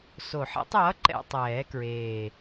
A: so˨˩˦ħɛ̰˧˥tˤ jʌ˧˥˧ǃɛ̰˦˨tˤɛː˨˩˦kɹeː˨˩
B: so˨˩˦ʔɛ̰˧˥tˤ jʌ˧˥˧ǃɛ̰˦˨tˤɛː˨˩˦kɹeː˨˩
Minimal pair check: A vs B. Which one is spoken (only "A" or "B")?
A